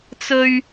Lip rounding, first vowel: rounded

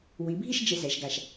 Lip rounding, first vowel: unrounded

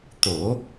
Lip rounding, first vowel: rounded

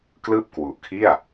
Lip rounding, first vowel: unrounded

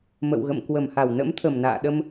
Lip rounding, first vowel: unrounded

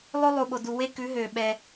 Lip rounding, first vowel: rounded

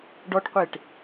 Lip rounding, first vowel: rounded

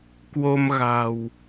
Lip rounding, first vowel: rounded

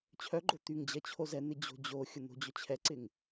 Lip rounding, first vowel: rounded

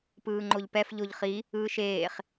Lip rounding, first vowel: unrounded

